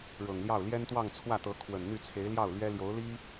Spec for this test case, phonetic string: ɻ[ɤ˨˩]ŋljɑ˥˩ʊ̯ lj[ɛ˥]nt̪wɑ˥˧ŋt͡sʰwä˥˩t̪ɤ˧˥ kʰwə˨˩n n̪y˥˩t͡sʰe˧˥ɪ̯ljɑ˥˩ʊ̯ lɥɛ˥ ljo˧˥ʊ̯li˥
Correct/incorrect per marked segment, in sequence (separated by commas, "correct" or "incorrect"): correct, correct